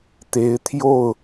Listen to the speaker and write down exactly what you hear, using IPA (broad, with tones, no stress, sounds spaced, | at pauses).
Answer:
t̪ e˨˦ ɪ̯ t̪ʰ j o˥˨ ʊ̯